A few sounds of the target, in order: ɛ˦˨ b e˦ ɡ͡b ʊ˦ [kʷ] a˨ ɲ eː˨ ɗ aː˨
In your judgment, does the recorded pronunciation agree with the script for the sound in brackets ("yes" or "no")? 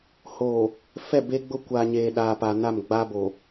yes